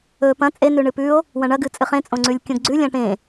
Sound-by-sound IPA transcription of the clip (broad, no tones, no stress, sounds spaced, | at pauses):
ɵ p ɐ̃ t͡sʼ e n ʉ ɳ ɨ p ʉ o̯ | w ɐ̃ ɳ ɐ ɡ ɨ t͡sʼ ɨ χ ẽ t͡sʼ õ ŋ͡ǀ ʉ lʲ kʲ õ ɡ ɡ͡ǀ ʉ lʲ ɐ̃ ʈ ẽ